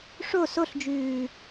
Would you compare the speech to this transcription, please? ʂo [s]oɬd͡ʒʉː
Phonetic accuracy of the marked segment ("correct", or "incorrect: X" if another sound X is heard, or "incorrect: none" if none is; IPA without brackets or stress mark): correct